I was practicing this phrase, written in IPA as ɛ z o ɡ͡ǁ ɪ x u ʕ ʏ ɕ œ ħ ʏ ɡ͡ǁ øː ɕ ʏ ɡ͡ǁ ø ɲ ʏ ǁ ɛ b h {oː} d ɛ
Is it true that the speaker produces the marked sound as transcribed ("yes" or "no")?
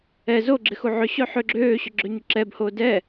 yes